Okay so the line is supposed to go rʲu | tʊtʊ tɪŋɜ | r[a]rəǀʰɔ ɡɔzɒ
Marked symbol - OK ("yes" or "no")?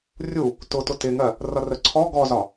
no